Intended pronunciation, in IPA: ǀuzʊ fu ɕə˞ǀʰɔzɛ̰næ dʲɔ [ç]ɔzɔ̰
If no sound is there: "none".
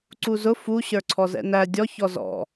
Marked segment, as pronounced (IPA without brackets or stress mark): ç